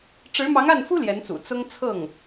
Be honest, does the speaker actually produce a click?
no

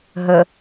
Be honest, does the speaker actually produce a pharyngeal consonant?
no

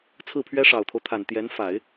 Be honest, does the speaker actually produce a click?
no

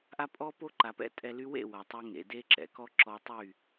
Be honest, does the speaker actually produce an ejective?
yes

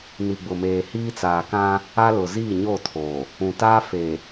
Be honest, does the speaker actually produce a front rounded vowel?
no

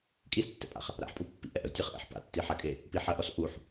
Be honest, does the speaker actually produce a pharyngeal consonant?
yes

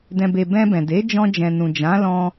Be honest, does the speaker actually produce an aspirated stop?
no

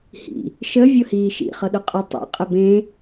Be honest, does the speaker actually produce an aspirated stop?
no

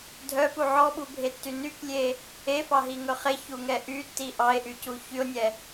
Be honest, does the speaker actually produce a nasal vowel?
no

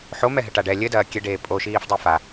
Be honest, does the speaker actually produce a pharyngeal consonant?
yes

